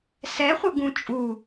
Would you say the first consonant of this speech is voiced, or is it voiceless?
voiceless